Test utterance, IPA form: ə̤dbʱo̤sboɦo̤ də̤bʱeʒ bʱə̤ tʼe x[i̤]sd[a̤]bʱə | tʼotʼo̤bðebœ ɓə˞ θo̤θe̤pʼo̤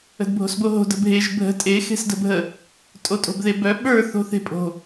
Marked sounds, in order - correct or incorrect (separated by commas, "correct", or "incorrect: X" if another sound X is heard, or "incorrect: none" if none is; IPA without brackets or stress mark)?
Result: incorrect: e̤, incorrect: ə̤